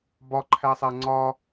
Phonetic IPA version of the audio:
b ɒ ǃʰ æ sˤ æ ŋ͡ǀ ɒ

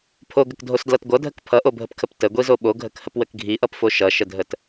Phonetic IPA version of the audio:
pʰ o ɡ ə k dʱ o s d l ʌ t ɡʷ ʌ dʱ ə k pʰ ʌ ʔ o bʱ ə p kʰ ə p t ə ɡʷ i z o ɓ o ɡʱ ə k h ə p w ə k ɡʱ i ʔ ʌ p f o ʃ ʌ ʃ ə dʱ ə t

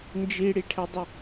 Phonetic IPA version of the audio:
n d͡ʒ i ɽ i ʈʰ ɛ dˤ ə

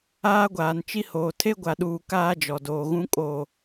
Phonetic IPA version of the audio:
aː˦ ɡʷ aː˨ n t͡ʃ i˦ h oː˨ tʰ e˦ ɡʷ a˨ ɗ uː˨ k aː˦ d͡ʒ ɔ˨ d oː˨ ɣ ũ˦ kʼ o˨

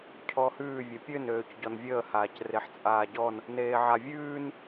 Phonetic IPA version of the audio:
cʰ ɔ h ʉː vʲ ɘ pʲ ø n øː c ɟ ɔ n vʲ əː h aː c r e ħ t͡sʼ aː ɟ ɔ n | n eː ʕ a vʲ ʉː n

